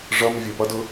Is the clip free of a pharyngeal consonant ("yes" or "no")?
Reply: yes